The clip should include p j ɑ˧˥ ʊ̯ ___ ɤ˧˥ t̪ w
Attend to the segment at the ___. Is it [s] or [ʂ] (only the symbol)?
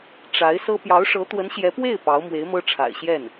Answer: ʂ